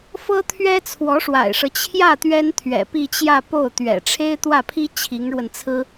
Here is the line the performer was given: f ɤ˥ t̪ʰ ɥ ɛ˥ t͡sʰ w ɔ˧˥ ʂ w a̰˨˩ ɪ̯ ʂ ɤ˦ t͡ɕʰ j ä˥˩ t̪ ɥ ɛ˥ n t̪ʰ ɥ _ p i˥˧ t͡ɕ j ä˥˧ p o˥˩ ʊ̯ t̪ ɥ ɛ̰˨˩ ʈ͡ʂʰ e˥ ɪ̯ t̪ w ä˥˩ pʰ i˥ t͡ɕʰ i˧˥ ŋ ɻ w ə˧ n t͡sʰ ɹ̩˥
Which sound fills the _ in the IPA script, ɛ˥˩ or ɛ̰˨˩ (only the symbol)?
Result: ɛ̰˨˩